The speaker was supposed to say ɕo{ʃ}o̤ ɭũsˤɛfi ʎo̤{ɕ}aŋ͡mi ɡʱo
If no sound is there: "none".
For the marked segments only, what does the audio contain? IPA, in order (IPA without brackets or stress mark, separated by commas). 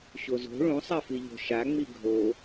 z, ʃ